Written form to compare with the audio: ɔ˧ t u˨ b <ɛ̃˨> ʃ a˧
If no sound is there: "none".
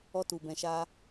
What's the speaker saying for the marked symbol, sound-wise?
ɛ̃˨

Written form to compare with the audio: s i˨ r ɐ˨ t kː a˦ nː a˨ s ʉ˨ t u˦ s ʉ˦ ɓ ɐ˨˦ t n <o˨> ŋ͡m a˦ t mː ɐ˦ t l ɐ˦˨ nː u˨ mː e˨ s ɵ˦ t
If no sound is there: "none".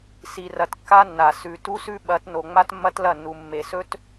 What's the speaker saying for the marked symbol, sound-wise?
o˨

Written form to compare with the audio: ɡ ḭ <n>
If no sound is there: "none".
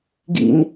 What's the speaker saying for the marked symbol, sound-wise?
n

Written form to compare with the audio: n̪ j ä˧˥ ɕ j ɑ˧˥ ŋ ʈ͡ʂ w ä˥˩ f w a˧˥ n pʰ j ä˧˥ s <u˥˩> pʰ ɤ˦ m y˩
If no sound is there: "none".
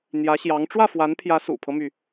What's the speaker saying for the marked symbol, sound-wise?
ṵ˨˩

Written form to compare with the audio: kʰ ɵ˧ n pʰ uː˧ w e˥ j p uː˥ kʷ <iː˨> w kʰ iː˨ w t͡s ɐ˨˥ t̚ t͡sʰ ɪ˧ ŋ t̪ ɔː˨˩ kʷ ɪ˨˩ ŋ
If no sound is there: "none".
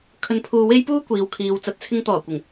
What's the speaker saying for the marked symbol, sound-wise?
iː˨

